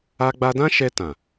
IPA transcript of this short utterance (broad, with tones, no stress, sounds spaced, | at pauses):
a˧ ɡ͡b a˧ d ã˦ ʃ ɛ˧ t ã˨